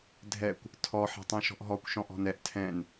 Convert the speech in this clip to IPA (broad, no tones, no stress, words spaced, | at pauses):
dʱɛkʷ | tʰɔ ħɛ̤tˤɛ̃ʃɔ̤ʔɦɔkʷ ʃɔ̃ʔɔ̤nɛʔ tʰɛ̃n